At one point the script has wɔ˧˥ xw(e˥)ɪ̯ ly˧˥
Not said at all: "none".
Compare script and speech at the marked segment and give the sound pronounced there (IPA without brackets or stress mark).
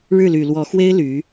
e˥